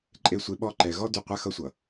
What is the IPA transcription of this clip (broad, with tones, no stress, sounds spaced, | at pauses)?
ǃʼ e˨ sʷ e˨ ɓ ɔ˦ ǃ ɛ˨ ɣ ɔ˦ d y˨ qʷ a˦ x ʌ˦ sʷ ʌ˨